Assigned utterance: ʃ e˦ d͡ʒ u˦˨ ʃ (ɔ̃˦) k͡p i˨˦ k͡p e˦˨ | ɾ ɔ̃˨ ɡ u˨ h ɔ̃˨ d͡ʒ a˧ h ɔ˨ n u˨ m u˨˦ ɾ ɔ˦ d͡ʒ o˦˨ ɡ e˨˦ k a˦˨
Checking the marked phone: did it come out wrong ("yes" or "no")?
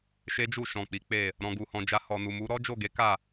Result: yes